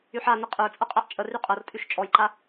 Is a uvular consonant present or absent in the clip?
present